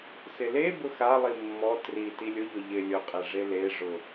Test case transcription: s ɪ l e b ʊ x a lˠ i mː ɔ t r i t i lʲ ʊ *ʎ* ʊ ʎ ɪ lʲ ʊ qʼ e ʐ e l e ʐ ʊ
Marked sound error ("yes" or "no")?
no